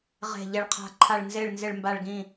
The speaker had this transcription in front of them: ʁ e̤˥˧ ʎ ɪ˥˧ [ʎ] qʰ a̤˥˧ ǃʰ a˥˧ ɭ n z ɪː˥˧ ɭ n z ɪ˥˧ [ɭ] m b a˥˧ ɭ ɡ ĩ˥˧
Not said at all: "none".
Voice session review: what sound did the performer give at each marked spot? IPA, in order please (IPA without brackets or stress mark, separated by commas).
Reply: ɭ, ɭ